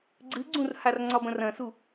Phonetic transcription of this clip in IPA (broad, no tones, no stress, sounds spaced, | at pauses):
ɡ͡ǀ ɨ ɡ͡ǀ ũ r h a r ŋ͡ǀ ɒ b ɐ̃ r ɐ̃ s u